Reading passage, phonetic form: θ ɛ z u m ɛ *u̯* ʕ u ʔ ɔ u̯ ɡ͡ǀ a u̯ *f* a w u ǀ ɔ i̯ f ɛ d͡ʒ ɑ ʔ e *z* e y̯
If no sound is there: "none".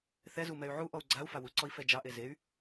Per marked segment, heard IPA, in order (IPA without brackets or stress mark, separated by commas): y̯, f, z